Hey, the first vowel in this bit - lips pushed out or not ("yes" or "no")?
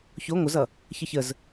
yes